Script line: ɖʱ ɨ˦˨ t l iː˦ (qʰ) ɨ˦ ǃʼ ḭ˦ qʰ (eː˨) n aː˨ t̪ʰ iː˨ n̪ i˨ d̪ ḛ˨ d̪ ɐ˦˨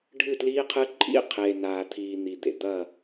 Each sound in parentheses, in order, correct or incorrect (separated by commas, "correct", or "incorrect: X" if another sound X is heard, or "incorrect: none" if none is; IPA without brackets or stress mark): correct, correct